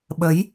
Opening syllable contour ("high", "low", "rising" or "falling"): rising